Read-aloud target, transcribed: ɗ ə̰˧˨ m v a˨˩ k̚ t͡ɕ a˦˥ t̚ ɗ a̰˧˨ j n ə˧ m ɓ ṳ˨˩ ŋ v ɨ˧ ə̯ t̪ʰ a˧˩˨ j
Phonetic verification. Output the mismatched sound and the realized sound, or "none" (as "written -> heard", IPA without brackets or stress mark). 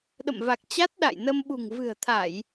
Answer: ɨ˧ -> ɨ̤˨˩